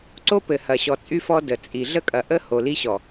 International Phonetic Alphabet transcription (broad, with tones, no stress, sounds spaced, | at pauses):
ǀ o˦ p ɘ˨ h ɐ˨ ɕ ɔ˨ t͡sʼ y˦ f ɔ˦ d ə˨ t͡sʼ i˨ ɮ ə˦ kʼ ɐ˨ ʔ ə˦ h o˨ l i˦ ɕ ɔ˨